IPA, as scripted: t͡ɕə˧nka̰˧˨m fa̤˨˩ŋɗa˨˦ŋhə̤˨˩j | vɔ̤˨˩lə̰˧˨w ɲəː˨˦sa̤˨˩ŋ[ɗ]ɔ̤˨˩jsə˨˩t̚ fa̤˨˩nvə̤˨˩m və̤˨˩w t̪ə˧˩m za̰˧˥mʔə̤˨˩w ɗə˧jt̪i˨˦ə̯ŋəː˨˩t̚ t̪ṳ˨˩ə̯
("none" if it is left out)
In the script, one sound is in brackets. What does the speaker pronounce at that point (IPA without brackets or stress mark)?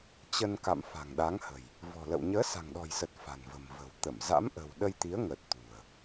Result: ɗ